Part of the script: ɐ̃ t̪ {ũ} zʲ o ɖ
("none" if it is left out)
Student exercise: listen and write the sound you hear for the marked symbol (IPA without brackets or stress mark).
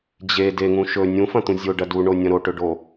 ũ